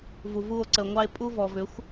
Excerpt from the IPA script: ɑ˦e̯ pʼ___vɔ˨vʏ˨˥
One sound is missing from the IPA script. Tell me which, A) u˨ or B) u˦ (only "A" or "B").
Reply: B